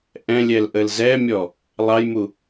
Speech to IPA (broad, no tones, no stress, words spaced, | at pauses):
ʔɛ̃lʲɛl ʔəlzɛmʲɔ | lˠɑjmu